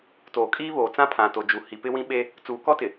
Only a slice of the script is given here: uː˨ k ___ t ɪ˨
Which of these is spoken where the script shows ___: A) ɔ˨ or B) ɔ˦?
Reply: B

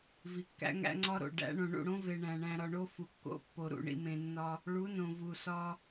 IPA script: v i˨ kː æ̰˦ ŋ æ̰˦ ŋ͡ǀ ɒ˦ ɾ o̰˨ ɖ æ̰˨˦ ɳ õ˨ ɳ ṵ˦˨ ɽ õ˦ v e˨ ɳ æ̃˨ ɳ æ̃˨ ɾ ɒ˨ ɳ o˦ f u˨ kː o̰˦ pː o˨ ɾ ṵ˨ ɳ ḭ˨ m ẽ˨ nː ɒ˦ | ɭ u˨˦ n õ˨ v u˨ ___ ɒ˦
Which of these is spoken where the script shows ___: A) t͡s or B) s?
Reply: B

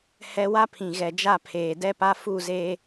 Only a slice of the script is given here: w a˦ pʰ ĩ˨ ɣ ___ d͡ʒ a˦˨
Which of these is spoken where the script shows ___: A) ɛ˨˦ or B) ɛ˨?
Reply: B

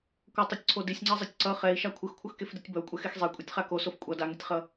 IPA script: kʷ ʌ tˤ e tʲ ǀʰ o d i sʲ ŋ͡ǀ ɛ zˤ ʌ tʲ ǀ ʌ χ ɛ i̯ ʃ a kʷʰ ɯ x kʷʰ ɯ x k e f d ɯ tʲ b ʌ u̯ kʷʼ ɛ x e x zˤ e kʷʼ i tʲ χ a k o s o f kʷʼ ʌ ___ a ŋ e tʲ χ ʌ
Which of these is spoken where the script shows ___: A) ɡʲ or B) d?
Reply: B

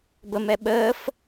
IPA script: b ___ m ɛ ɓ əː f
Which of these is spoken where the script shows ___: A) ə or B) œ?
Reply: A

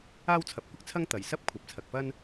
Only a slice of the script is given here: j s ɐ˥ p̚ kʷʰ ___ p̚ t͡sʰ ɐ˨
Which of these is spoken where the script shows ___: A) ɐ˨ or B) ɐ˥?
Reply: A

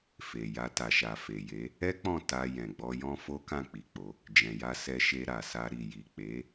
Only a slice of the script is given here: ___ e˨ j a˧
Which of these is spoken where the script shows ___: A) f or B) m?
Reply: A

